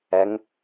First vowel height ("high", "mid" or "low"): mid